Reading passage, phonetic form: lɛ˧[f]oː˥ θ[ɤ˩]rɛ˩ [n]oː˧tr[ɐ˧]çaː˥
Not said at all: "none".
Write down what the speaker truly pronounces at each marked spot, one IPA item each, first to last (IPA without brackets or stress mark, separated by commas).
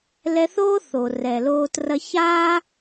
θ, o˩, l, ɐ˧